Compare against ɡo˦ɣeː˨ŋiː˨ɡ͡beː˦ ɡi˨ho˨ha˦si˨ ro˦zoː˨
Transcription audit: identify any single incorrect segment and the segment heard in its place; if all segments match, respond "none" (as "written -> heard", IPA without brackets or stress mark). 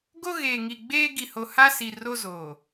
iː˨ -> i˨